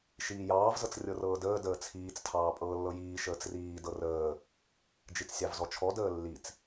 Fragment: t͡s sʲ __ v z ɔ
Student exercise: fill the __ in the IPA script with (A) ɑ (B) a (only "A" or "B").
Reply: A